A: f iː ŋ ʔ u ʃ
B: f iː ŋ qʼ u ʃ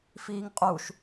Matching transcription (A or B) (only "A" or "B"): B